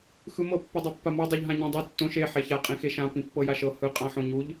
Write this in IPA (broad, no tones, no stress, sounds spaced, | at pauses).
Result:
x ɯ m ɤ pː i dˤ o pː a m ɔ dˤ u ʎ ɦ ã ɲ ĩ dˤ ɯ tː õ ʃ e ħ ɛ ç a qʼ ĩ x e ʃ ã p ĩ pː ɤ j a ʃ ɤ h ɯ qʼ ã ħ õ ɲ u ʎ